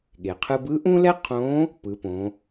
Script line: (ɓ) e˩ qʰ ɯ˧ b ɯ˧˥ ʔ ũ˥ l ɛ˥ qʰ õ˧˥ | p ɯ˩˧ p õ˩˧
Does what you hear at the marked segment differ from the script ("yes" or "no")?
yes